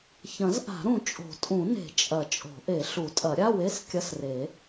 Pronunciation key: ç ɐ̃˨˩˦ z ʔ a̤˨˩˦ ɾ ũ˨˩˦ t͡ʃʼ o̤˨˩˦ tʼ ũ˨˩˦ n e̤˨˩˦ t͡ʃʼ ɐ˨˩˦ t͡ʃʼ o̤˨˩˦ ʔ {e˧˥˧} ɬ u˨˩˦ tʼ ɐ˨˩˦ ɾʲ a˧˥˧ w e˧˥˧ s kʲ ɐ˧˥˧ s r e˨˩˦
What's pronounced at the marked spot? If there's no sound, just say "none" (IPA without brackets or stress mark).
e˨˩˦